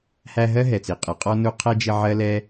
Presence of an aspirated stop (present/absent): present